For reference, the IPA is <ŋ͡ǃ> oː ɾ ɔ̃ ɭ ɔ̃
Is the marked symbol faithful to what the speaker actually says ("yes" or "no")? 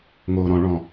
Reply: no